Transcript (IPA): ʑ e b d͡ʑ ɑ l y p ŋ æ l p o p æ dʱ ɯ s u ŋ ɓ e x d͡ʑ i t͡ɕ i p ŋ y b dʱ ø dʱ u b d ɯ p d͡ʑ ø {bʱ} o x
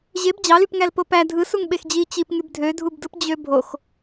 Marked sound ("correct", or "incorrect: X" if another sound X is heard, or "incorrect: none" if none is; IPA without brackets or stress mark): correct